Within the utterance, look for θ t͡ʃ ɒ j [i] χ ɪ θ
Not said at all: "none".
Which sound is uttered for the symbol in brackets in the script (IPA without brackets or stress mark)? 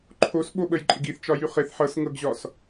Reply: y